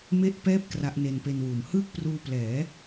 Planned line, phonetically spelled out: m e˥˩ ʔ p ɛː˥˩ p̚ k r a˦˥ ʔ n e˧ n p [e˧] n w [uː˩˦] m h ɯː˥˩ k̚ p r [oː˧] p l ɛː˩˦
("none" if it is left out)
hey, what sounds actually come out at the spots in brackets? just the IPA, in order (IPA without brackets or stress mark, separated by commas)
e˧, uː˩˦, uː˧